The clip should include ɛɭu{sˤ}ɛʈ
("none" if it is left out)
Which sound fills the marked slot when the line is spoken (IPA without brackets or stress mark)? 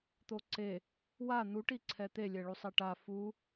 sˤ